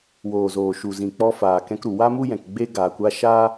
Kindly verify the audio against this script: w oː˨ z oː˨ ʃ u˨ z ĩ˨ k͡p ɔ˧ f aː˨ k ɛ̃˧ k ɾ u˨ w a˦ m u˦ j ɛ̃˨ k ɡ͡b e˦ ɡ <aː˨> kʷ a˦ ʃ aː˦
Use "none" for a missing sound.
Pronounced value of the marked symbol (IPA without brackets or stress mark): aː˨